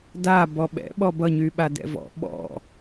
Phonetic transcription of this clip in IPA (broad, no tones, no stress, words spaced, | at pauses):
da bɔɓɛ̰ɓɔ bʌɲyɓa dɛ̰vɔ̰ ɓɔ̰